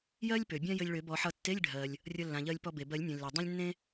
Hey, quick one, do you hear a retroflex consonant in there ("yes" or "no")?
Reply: yes